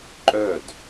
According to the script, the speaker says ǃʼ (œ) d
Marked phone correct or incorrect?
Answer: correct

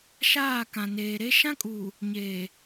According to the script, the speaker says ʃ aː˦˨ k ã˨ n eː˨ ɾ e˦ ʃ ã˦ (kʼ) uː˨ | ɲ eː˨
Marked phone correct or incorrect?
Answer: correct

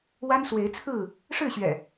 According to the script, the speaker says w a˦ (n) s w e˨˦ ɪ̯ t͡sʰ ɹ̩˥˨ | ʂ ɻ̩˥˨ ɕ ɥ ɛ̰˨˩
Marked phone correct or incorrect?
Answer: correct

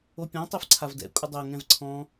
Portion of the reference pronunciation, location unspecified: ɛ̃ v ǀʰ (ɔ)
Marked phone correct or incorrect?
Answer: incorrect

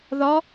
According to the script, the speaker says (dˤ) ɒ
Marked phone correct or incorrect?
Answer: incorrect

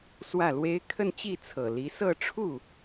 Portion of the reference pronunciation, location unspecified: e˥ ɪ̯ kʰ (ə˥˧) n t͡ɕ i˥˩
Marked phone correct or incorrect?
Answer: correct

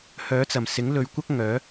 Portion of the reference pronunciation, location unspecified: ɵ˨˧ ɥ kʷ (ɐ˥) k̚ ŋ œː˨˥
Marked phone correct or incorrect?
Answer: correct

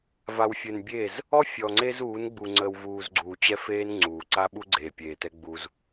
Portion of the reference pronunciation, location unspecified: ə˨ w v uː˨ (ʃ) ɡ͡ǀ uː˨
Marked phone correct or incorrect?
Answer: incorrect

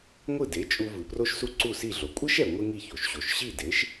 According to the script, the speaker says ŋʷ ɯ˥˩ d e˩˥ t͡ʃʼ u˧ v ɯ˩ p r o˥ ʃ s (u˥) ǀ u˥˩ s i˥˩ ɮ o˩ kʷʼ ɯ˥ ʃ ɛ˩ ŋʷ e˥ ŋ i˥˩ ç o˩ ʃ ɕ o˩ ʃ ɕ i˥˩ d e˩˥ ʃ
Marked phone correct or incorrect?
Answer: correct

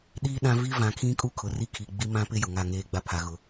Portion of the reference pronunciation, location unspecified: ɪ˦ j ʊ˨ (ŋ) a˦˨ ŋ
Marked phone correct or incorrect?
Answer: correct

